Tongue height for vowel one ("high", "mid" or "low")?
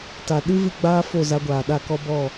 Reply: low